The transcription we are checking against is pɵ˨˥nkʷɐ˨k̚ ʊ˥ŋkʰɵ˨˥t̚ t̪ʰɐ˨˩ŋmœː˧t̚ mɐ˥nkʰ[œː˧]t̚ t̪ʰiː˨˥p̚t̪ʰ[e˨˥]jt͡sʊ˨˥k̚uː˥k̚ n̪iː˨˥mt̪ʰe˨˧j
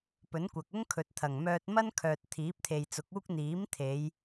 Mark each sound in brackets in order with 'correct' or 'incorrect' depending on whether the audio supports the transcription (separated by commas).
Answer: incorrect, incorrect